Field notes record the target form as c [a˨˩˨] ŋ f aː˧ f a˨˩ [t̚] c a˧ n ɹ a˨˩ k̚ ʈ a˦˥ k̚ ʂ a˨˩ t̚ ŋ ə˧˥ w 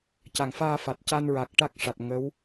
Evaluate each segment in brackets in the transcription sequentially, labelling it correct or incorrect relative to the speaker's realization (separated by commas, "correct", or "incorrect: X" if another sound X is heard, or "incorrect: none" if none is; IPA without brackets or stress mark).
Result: correct, correct